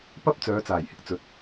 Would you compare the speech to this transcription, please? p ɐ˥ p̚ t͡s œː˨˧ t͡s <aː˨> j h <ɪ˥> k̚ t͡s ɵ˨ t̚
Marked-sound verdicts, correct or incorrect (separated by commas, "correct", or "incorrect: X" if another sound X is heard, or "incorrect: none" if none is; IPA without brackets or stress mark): incorrect: aː˨˩, correct